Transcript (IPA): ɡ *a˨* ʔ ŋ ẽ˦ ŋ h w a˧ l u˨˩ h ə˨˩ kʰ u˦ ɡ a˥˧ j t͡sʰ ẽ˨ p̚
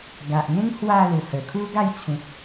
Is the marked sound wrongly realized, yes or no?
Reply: no